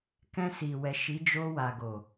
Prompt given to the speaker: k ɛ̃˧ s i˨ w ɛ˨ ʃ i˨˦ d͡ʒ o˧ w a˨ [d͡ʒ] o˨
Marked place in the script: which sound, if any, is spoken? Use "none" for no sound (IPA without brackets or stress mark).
ɡ